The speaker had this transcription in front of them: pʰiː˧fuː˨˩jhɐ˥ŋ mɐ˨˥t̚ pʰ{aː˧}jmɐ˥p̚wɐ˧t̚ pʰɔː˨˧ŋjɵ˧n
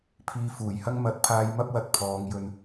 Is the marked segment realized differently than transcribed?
no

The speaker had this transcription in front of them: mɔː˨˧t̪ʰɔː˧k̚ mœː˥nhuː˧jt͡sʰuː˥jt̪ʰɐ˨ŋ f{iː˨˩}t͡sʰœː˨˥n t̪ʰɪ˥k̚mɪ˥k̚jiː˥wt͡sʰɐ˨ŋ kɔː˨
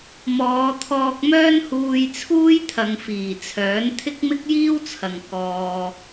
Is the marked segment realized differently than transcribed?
no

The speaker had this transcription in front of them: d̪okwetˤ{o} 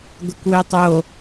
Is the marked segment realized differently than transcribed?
no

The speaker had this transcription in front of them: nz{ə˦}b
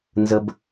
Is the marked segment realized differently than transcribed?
no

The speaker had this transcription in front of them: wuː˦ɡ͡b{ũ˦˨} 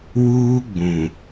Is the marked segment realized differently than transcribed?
yes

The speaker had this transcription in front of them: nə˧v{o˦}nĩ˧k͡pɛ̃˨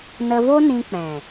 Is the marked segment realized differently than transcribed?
no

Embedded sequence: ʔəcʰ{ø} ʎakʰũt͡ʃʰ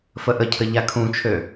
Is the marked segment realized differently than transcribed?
yes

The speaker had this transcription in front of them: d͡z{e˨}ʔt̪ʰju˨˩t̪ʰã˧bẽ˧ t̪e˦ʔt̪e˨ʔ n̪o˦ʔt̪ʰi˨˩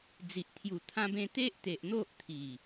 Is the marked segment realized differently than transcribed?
yes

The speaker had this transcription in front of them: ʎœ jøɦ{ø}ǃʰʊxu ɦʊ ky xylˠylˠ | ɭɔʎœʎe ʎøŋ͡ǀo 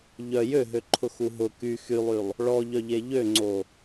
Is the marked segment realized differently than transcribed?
no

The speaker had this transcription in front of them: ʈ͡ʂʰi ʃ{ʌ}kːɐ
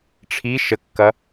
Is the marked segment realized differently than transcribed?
yes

